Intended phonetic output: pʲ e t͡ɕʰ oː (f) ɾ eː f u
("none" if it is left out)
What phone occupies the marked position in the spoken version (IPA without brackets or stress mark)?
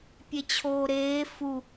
none